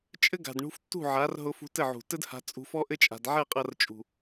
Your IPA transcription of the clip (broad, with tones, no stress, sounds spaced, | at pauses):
t͡ʃʼ ɘ˦ ɡ a̤˨ d ɳ ṳ˧ f tː ṳ˦˨ ʕ a˨˦ r ɦ ʊ˧ f ṳ˧ t ɘ˦˨ ʕ ṳ˨ t ɘ˦ d h a̤˧ t͡sʼ ṳ˧ f ɔ˦ ʔ ɘ˦ t͡ʃʼ a̤˨ d ʕ ɛ˦˨ qʼ ɐ˧ r t͡ʃʼ ṳ˨